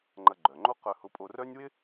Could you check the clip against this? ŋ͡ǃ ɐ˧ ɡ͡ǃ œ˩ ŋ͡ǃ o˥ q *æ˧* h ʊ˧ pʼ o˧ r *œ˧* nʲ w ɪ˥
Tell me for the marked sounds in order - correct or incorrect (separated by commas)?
incorrect, incorrect